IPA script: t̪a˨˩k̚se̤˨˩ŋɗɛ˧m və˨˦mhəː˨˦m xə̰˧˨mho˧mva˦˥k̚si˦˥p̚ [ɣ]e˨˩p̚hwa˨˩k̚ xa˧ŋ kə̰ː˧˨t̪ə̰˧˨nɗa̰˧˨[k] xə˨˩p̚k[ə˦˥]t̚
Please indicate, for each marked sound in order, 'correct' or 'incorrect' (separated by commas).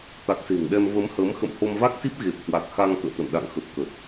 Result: correct, incorrect, incorrect